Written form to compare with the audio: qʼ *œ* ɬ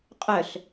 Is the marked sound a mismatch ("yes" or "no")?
no